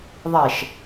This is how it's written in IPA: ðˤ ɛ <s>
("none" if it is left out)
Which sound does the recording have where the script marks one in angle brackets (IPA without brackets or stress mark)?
ʃ